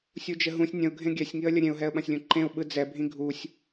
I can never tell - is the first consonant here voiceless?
yes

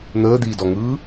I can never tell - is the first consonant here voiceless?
no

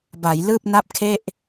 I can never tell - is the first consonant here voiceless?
no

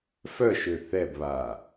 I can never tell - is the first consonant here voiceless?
yes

